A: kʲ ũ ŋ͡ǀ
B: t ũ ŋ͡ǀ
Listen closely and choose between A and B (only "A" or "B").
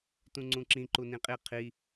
B